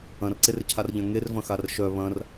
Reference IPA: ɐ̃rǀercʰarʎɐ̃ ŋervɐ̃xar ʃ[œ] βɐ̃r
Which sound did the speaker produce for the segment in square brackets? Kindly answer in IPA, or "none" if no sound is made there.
œ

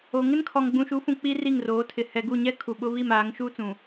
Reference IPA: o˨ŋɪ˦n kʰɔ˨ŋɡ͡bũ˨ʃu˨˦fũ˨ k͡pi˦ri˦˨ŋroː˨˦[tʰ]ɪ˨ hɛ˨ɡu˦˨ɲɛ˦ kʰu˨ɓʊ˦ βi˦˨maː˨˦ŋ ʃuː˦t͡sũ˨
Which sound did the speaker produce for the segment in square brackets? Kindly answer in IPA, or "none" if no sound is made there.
tʰ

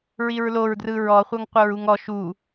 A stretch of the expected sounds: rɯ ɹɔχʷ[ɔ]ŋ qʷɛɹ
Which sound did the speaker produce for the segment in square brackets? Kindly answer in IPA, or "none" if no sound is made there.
ɤ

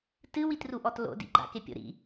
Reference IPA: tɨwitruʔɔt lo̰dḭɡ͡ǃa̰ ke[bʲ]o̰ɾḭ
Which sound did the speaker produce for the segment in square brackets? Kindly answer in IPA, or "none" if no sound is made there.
pʲ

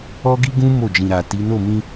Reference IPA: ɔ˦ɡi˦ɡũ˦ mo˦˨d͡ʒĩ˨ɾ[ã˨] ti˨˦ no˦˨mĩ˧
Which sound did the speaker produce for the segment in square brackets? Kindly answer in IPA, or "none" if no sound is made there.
a˨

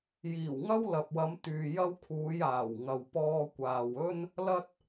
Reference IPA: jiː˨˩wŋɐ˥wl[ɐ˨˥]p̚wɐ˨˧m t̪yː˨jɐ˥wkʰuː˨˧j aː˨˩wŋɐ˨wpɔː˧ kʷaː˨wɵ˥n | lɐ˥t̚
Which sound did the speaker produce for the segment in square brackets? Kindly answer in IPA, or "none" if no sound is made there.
ɐ˨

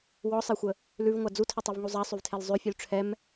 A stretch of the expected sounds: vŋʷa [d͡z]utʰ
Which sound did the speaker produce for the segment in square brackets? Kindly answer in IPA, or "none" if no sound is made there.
d͡z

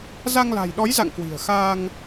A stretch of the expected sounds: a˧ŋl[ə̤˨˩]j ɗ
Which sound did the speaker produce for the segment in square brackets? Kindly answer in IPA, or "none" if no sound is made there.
a̤˨˩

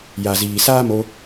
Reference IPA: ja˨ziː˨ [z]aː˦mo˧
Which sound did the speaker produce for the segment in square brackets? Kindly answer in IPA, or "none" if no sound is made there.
s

